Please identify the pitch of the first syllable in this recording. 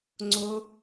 high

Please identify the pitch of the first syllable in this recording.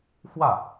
falling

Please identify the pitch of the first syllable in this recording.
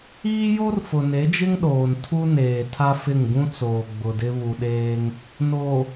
high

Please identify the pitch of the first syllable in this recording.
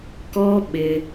high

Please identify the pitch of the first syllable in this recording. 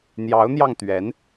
rising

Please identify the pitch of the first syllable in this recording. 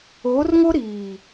rising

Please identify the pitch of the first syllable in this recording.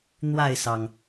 falling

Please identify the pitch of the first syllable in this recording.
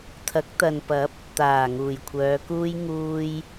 rising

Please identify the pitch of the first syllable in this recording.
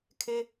high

